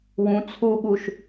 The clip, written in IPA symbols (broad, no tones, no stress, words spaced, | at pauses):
wũ t͡sʰuɠuʃ